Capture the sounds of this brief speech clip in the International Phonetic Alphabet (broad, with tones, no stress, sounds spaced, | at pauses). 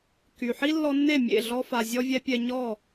k y˩ ħ i˥ lː ɔ˧ nː e˥˩ mʲ ḛ˥˩ ɮ ɔ˧ f a˩ zʲ ɔ˧ vʲ ɛ˧ pʲ ɛ˧ ɲ ɔ˥˩